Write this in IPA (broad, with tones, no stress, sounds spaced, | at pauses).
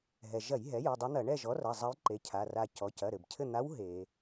ɦ ɛ˩ ʒ ɐ˧˩˧ j ɦ ɛ˩˥ j u˩˧˩ dˤ e˧˥ n̪ ɐ˧˩˧ ɳ ɛ˦˨ ʒ ɔ˩˥ r ɐ˩˧˩ zˤ ɐ˧˥ j ǃ e˩˥ cʰ a˩˧˩ r a˦˨ c ɔ˩˧˩ c ɐ˩˧˩ ɾ ɘ˩ b cʰ ɘ˦˨ n̪ a˧˥ w ɦ e˧˩˧